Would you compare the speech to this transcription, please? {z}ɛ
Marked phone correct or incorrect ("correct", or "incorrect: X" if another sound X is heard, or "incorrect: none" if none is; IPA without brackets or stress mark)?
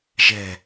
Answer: incorrect: ʒ